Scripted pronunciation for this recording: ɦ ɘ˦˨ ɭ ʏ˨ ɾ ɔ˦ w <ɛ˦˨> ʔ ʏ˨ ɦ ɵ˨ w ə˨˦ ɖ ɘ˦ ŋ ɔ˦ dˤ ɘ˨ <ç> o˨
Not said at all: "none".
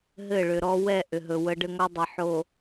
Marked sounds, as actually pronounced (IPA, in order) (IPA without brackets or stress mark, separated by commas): ɛ˦˨, ħ